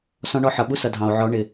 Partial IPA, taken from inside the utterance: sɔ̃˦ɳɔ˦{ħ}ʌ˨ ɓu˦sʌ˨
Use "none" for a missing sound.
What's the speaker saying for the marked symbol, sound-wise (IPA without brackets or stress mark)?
ħ